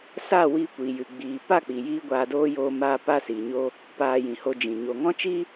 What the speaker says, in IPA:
saː˦˨wiː˧kʷiː˨jɨ˨ ɡ͡biː˨ pa˦˨k͡pi˨jiː˧ ɡʷaː˧doː˦ joː˧maː˧ pa˧siː˨ɲo˧ | paː˧jĩ˨ho˧d͡ʒĩ˨ ɲo˨ŋɔ̃˦t͡ʃiː˦

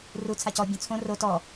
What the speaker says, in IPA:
ru t͡sʰacɔ bʲõt͡sʰõ ro tɔ

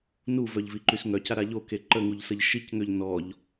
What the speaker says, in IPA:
nuvœʎviǃys ŋœcaɾa ʎoke ǃəŋuʎsəʎ ʃicŋøʎ nɔʎ

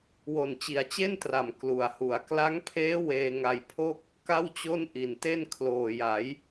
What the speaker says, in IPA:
wo˨˩nt͡ɕi˩˦a̯t͡ɕe˥˩ntra˨˩m klu˨˩a̯hu˩˦a̯ kla˦˥ŋpʰeː˦˥ weː˧ŋa˧jpʰo˥˩k̚ | ka˥˩wt͡ɕo˥˩n ʔi˨˩nte˥˩n kʰloː˨˩ja˩˦j

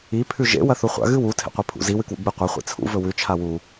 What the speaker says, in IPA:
i pʰʉʒḛ wɐθuχʷa̰ ɣɨwu tʰḛqʷepʰṵ zi wɨkwṵɡ͡bɨ qʷɐ χʷḭt͡sʰṵ vɵwʉ t͡ʃʰawu

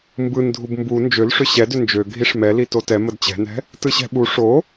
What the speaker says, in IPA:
mbɯndʱub mbu nd͡ʒølʂʏ ɕɛdʏ nd͡ʒø ɡʱiʂmɛli totɛ mədt͡ɕɛ̤nɛ̤ | tɯɕɛ̤ɓu ʂo

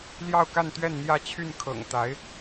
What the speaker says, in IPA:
ljɑ˥˧ʊ̯ka˥˧nt̪ɥɛ˥˧n n̪jä˥˧t͡ɕʰy˥˩n kʰɤ̰˨˩ŋt̪a˧˥ɪ̯

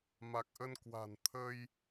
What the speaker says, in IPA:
ma˨˩k̚ʔə˧n kwa̤˨˩n t̪ʰə˧j

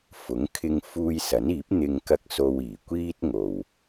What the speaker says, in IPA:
fʊ˨˥ŋkʰɪ˧ŋ fuː˧jsɐ˨˥niː˨˥p̚ n̪ɪ˧ŋ kɐ˥k̚ so˧wiː˨˩kʷiː˥t̚ ŋo˨w

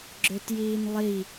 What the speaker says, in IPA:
ɡ͡ǁøtjiːnlˠi

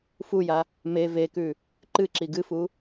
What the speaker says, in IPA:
fuja | me vekʉ | ǃɨǁi ɡɨfu

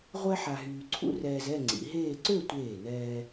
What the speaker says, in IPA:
ʁʷɛ˥ ħa˧ɦyː˧ǀʰṵ˥ rɛː˧zɛ˥˧ ŋ͡ǀḭ˩˧ɦeː˥˧ ǀø˥˧tʷeː˧˩nɛː˧

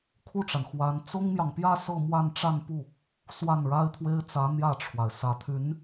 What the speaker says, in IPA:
kʰu˥˩ʈ͡ʂa˩n xwa˧˥n t͡sʊ˥ŋmjɑ˨ŋpjä˥˧ sɤ˥˧mwa˥˧nʈ͡ʂa˥˧n pu˥˩ | swa˥˩nɻa˥ɪ̯t̪ʰwe˥ɪ̯ t͡sä˧˥ n̪jä˥˩ʈ͡ʂʰwa˩ɪ̯ sä˨˩t̪ʰy˧˥n

